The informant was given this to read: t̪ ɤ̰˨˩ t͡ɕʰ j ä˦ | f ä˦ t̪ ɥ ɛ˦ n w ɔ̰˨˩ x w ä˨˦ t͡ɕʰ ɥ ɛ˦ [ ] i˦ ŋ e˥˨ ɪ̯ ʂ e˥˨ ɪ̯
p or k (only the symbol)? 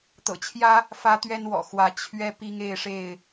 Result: p